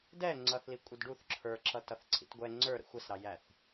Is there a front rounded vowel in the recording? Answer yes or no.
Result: no